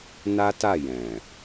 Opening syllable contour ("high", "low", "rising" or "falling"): high